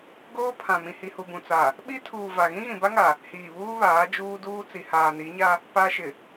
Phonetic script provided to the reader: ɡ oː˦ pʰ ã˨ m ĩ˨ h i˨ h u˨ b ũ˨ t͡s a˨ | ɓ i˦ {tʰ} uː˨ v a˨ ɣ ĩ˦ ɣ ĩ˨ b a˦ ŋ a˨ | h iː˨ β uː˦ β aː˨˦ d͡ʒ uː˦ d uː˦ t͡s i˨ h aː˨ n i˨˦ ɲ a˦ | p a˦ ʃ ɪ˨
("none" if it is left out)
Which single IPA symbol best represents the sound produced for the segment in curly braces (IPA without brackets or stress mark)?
tʰ